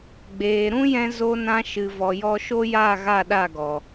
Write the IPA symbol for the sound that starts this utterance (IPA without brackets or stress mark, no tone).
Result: ɡ͡b